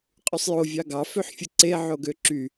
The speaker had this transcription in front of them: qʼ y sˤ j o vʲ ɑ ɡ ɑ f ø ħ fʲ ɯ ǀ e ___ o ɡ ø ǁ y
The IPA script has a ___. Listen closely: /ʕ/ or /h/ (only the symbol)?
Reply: ʕ